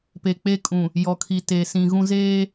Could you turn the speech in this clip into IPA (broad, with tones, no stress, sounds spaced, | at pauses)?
p e˨ k͡p e˦ kʼ ũ˨ | j ɔ˨ kʰ i˨ t e˨ s ĩ˨ ɣ ũ˦ z eː˦